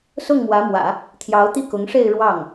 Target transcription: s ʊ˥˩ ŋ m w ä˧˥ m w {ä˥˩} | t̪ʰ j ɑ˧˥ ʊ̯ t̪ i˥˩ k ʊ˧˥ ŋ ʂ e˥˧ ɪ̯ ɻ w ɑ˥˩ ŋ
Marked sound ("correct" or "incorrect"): incorrect